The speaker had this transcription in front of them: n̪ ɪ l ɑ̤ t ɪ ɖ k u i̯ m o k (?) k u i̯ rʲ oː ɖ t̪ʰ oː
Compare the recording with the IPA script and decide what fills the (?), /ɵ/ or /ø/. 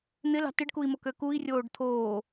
ø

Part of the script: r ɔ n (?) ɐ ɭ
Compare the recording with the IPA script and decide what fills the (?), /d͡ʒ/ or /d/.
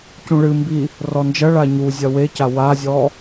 d͡ʒ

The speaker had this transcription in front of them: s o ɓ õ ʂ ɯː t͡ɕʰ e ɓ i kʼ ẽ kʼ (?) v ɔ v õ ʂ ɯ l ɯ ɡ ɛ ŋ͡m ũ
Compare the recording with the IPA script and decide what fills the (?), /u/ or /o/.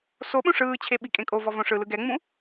o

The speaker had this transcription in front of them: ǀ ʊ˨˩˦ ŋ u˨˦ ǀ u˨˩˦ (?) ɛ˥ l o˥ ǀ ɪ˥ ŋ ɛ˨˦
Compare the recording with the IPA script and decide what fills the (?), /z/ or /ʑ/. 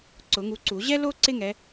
ʑ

